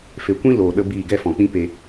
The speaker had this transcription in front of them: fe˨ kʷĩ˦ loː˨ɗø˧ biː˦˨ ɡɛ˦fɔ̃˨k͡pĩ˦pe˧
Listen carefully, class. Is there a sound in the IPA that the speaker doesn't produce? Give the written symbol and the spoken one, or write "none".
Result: ø˧ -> ə˧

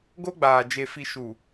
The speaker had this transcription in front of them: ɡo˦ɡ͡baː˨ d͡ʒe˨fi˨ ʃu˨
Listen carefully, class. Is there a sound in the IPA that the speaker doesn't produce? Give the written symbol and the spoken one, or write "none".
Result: none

